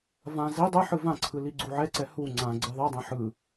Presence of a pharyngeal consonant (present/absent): present